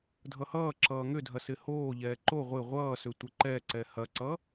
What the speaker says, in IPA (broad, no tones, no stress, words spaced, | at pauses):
dʱʌhʌː ǁʌːŋʏdʱɐ sɪhoː ʎɛːǃo ʁʷɪ ʁʷʌːsʏ tʷɪǃɛǀɛ hɐǀʌ